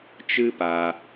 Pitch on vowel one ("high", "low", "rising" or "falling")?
high